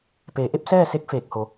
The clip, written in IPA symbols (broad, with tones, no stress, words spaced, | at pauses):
peː˩˧ʔe˧˥p̚sɛː˥˨se˧˥k̚ feː˧˩k̚ho˩˧